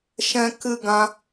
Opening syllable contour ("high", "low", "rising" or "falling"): high